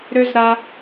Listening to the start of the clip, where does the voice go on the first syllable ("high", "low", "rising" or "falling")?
high